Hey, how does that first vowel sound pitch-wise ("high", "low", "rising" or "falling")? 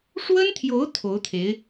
high